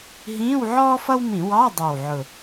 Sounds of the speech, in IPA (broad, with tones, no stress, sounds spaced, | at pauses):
ɦ ĩː˧˥˧ w ʕ ɔː˥ f ʌ˥ w m ĩ˧˩˧ w ɑ˧˥˧ dˤ ɛ˨˩ w ʕ ʊ˨˩